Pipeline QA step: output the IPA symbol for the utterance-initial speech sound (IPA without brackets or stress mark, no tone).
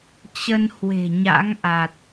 t͡ɕ